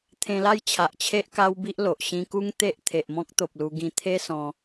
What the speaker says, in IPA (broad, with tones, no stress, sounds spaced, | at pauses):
t̪ʰ ẽ˧ l a˥˧ j t͡ɕʰ a˨ ʔ t͡ɕʰ e˦ ʔ k a˦ w b i˦ ʔ l o˨ ʔ ɕ ĩ˧ k u˦ ŋ t̪ e˦ ʔ t̪ʰ e˨ ʔ m ɔ̃˦ k̚ t̪ o˨ p̚ l u˧ ɡ ĩ˧ t̪ʰ e˦ s ɔ̃˧